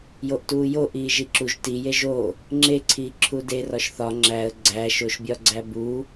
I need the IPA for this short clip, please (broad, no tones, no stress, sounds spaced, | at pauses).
j o ʔ t uː j o ʔ iː ʒ i ǁ u ʒ t i j e ʒ o | ŋ͡ǁ e ǀʰ iː ǁʰ u d e r ɒ ʃ θ ɒ ŋ͡ǁ æ ə̯ ɡ͡ǀ æ ʃ o ʃ bʲ ɒ ɡ͡ǀ æ b u